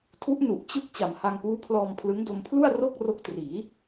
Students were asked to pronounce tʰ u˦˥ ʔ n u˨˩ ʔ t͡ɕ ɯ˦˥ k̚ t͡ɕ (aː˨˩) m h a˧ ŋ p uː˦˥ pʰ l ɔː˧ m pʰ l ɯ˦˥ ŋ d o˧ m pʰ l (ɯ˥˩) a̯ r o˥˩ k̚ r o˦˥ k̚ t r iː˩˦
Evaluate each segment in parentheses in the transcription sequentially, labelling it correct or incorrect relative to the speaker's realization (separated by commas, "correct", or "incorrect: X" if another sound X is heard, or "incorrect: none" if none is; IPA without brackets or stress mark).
incorrect: a˨˩, incorrect: u˥˩